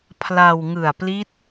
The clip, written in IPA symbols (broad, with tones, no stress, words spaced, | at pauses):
pʰla˧wŋɯ˨˩a̯pli˦˥t̚